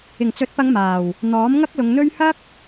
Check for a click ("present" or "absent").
absent